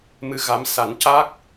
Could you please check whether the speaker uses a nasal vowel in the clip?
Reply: no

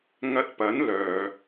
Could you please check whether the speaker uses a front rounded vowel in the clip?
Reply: yes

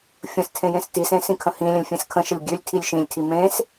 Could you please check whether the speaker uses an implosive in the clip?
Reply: no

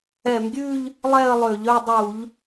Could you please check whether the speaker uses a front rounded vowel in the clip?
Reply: yes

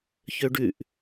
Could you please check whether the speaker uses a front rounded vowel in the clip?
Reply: yes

